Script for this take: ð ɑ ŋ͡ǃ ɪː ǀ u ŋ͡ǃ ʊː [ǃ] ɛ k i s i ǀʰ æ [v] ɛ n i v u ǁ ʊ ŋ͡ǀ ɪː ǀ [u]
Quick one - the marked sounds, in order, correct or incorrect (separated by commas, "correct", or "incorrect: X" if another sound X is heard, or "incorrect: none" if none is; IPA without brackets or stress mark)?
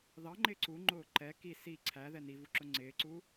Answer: correct, incorrect: ð, correct